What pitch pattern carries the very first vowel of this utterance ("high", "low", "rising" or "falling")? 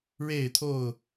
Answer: falling